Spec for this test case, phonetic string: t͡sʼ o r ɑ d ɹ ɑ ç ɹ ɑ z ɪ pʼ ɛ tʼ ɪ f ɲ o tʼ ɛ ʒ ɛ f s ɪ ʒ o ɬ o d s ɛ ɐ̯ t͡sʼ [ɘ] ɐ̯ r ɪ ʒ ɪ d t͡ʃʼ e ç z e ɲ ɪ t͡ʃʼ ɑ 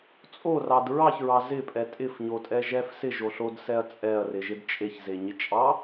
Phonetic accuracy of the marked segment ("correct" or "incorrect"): incorrect